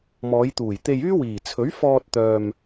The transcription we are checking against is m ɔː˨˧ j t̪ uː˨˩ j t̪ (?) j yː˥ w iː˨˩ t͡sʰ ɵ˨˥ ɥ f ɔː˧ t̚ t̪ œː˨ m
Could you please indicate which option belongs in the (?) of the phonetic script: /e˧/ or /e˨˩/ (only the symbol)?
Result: e˧